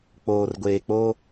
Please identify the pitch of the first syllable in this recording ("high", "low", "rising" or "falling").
low